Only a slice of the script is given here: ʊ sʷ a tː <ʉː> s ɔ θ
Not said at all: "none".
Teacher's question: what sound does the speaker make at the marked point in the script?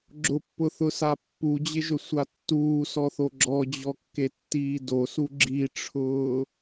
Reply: uː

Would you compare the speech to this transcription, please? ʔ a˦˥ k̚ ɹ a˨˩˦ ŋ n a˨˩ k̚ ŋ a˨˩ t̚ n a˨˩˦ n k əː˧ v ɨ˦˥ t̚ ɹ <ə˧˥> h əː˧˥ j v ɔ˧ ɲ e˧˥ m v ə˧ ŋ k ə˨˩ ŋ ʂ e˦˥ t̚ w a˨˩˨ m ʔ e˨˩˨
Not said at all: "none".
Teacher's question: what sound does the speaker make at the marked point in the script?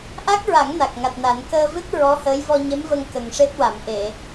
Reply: ɔ˧˥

